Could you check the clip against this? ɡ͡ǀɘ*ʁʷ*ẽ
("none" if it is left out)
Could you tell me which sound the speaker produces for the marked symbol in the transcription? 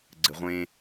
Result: ʁʷ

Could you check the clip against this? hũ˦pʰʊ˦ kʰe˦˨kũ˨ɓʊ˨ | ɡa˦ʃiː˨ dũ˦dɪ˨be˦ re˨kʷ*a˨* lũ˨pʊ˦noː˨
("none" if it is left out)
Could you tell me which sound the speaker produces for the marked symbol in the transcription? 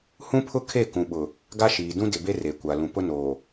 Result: a˨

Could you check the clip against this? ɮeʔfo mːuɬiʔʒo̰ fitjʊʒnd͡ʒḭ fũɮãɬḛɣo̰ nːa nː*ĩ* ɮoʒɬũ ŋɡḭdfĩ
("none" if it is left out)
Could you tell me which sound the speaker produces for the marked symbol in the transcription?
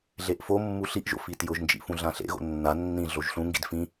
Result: ĩ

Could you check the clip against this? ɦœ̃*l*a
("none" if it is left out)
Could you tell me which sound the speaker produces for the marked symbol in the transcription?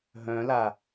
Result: l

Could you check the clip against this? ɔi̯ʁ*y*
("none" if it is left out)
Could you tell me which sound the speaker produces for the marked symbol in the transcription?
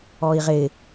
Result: ɪ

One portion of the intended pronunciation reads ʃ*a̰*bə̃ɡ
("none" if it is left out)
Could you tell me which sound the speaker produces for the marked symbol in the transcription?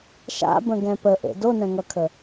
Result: a̰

